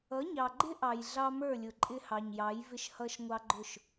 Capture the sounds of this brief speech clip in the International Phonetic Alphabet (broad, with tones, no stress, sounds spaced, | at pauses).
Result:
ʌ˨˦ ɲ ɑ˨ ɡ͡ǃ ɪ˦ ʔ ɑ˨ j ɮ ɑ˦ m ə˞˦˨ lʲ ʊ˨ ǃʼ ɪ˦ h ɑ˨ ɲ j ɑ˨˦ j v ɪ˦ ʃ h ʌ˦ ʃ ŋʷ ɑ˦ ɡ͡ǃ ʊ˦˨ ʃ